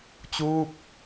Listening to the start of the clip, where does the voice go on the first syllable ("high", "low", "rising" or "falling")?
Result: falling